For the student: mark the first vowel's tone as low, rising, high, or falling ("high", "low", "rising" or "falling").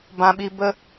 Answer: low